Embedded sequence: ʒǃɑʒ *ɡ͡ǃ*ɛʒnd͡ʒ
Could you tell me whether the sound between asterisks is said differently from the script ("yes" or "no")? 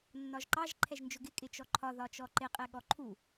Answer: yes